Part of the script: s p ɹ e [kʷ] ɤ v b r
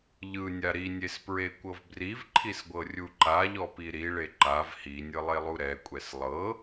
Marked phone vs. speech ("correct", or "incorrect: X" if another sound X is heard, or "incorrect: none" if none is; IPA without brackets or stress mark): correct